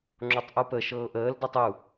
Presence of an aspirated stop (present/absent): absent